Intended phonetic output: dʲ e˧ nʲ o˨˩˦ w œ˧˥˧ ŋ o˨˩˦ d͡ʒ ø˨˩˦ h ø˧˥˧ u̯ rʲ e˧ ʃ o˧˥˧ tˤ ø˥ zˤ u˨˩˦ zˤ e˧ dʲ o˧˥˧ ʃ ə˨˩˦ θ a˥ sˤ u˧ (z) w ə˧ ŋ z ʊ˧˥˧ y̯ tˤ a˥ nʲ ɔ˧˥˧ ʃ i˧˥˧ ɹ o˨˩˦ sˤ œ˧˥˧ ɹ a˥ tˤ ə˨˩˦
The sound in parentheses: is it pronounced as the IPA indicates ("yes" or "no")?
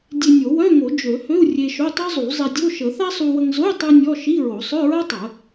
no